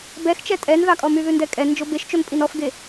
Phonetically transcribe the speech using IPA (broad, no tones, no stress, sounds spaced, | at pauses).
b ɛ x t͡ʃ ɛ tʼ ɛ n ð ɑ kʼ ɔ m y ð ʉ n d ɛ kʼ ɛ n d͡ʒ o b e ʃ t͡ʃ o n pʼ i n ɔ f ɡ e